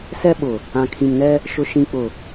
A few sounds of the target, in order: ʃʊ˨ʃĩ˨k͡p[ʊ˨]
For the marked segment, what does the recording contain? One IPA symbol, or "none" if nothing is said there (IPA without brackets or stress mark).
ʊ˨